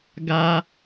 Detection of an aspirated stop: absent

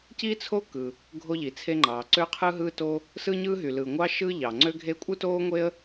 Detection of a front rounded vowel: present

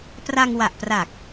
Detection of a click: absent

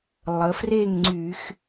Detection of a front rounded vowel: present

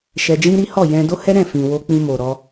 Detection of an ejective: absent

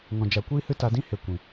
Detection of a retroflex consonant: absent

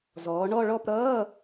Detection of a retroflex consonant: present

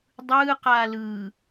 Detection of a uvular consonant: present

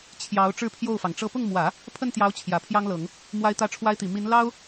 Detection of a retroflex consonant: present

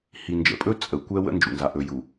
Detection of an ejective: present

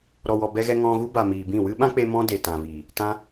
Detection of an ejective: absent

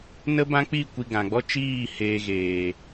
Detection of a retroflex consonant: absent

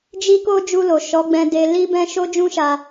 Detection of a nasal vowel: present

